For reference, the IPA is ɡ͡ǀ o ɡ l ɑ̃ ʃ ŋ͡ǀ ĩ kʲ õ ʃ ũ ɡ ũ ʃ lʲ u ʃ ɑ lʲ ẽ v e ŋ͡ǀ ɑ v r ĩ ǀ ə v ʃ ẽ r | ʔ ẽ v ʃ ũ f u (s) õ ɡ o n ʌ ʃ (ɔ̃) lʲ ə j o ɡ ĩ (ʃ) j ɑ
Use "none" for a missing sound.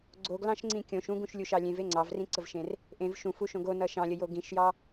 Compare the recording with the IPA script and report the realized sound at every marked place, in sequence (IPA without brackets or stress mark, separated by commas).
ʃ, ɑ̃, ʃ